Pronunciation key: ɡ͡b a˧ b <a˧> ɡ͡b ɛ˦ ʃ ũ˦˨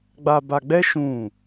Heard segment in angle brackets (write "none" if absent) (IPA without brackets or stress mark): a˧